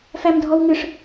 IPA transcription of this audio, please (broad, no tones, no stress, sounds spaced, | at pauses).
f æ m dʱ ɔ w ŋ ɨ ʂ